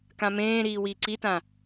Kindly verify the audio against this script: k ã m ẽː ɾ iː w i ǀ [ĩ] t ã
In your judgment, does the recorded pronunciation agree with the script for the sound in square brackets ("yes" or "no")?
no